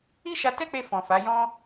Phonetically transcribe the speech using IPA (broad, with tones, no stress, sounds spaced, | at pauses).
i˦ ʃ a˧ t ɛ˦ k͡p e˧ f ɔ̃˨ f a˨˦ j ɔ̃˦